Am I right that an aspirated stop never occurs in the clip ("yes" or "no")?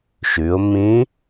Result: yes